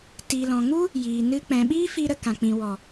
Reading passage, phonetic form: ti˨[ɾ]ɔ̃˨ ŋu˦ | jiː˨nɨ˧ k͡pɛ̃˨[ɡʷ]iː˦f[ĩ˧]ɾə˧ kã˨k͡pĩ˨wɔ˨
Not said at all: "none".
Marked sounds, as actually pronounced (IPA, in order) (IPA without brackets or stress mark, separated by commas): l, ɓ, i˧